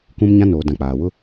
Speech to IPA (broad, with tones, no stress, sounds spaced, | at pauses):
k ũ˦ m ɲ ã˦ n oː˨ d ã˨ k͡p aː˨ w ʊ˦